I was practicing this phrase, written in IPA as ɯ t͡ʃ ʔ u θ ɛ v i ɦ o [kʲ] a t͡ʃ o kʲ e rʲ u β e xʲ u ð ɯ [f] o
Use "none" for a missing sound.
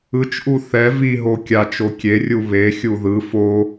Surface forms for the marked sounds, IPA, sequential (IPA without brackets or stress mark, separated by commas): kʲ, f